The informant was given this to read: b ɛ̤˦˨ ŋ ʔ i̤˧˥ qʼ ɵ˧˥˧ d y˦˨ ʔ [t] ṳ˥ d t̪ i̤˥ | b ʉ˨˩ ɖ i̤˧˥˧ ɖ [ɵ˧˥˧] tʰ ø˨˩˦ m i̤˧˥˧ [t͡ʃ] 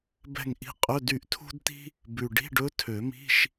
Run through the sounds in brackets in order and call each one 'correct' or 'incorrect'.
incorrect, incorrect, incorrect

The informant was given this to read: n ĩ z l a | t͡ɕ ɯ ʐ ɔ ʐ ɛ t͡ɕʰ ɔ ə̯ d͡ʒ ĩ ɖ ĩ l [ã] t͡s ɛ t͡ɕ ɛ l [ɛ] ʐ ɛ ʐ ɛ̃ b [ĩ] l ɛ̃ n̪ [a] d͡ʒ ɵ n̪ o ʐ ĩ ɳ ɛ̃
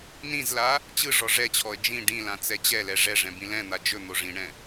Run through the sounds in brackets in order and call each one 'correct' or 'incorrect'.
correct, correct, correct, correct

